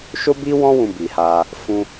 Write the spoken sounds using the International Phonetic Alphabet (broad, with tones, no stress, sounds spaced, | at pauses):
ʃ o˦ b i˦ w ɔ̃˦ w ũ˧ b i˨ h a˧ | f ũ˧